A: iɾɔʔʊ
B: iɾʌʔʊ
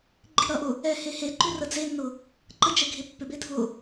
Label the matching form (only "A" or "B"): B